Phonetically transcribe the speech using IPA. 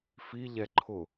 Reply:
fiʎɛ ǃʰʊ

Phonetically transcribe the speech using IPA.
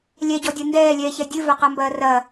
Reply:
lʲɛɟɔdʲɐ ndɛːlʲɛːçɛ dʲɨvɐqambɐː rɐ

